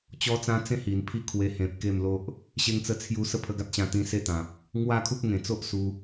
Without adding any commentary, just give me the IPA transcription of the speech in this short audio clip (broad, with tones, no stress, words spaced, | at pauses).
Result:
t͡ɕɔ˦t͡sã˦t͡sẽ˥˧hi˨˩n pʰi˦kʰwe˧ hẽ˨p̚ ke˥˧mlo˦ʔ | ɕe˦ŋt͡sə˦t͡sʰju˦ sə˥˧ pʰə˧ɡa˦t̚ɕã˧ t̪ĩ˦se˥˧t̪ã˨p̚ | ŋwa˥˧kʰu˦p̚ŋẽ˨˩t͡so˦ʔ su˧